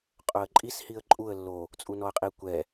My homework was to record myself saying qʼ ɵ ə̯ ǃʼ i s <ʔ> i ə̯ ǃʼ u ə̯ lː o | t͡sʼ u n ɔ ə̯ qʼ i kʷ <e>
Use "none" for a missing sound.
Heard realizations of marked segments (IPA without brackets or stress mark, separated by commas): h, ɛ